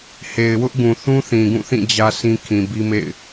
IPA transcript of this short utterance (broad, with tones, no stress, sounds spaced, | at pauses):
h e˨ ɪ̯ w ʊ˦ ʔ ɡ ũ˨ θ ũ˦ θ ĩ˨ ɡ ũ˦˨ θ ĩ˦˨ d͡ʑ ä˦ s ĩ˦ kʰ ĩ˨ b i˦ m ḛ˦˨ ɪ̯